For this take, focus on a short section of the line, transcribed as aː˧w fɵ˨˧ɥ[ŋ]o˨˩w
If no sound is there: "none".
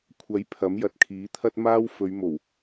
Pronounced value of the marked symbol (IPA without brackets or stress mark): m